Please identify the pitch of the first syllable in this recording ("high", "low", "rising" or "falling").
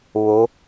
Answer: rising